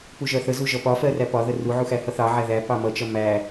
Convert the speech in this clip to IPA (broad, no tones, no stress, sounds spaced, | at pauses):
p u ʒ ɜ θ ə z u ʒ ʌ p ɒ f ɜ r æ p ɒ ð ə r u ʕ u x æ h ʌ θ ɑ ʕ æ ð æ p ɑ m ʌ t͡ʃ ʌ m æ